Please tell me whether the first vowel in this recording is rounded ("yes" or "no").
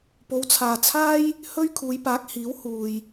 yes